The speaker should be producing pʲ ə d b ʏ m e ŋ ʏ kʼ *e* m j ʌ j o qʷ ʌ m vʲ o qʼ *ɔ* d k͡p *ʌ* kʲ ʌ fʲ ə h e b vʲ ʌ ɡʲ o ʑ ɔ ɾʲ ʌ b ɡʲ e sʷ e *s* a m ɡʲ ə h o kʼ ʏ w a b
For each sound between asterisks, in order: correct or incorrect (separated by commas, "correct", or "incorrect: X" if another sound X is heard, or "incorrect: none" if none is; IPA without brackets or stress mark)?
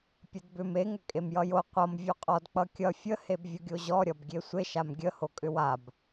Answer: correct, correct, correct, incorrect: ʃ